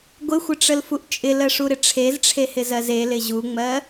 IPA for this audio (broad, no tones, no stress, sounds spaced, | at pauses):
ɡʷ ɪ xʷ ɪ ʈ͡ʂ ə l f u ʔ t͡ʃʼ ɪ l ɜ ʂ u ɾ ɪ ʈ͡ʂʰ e z ʈ͡ʂʰ e h ɪ z ɜ z e l ɪ ʑ u ŋ͡m ɜ